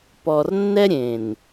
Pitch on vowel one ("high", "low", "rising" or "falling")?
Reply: low